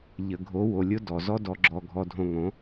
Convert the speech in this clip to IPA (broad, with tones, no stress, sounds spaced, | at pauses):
ʎ ə˨ ɡʱ o˨˦ w o˨ lʲ ʊ˦ d ɔ˨ z ɔ˦ d ɔ˨ ɡ͡ǁ ɔ˨ ɡʱ ɔ˨ dʱ õ˨ ŋ õ˨˦